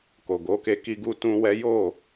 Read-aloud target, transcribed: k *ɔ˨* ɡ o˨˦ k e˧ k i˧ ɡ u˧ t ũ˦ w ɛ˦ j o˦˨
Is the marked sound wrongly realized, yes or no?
yes